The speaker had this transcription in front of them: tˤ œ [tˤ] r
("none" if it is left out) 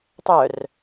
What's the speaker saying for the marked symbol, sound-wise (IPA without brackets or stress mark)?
none